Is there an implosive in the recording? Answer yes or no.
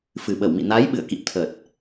yes